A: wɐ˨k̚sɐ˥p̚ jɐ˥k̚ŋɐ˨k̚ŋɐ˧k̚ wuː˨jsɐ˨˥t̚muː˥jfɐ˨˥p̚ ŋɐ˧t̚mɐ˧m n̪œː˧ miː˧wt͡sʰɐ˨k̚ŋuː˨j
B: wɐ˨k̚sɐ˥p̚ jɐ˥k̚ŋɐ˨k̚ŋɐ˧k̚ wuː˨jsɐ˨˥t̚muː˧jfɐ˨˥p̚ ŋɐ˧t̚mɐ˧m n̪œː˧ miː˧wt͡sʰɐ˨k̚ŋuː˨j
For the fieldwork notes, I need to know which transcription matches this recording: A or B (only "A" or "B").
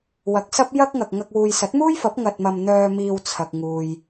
A